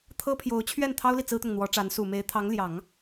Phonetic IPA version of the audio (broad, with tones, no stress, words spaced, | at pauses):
t̪ʰɤ˥pʰjo˧˥ʊ̯ t͡ɕʰɥɛ˥˩n t̪ʰɑ˥ʊ̯li˨ t͡sɹ̩˥t̪ʊ˨ŋn̪wɔ˧˥ʈ͡ʂa˧˥n su˨˩me˧˥ɪ̯t̪ʰɑ˧˥ŋ ljɑ˨˩˦ŋ